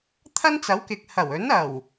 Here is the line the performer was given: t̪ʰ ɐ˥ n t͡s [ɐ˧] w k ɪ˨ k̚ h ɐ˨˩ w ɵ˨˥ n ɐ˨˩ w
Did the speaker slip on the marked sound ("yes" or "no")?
yes